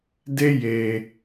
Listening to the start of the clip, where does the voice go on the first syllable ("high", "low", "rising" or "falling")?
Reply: high